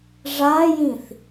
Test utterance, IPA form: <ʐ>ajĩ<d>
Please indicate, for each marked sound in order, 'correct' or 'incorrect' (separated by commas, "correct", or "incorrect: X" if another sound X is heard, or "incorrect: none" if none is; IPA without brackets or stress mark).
correct, incorrect: θ